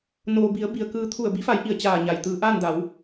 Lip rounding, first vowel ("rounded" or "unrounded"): rounded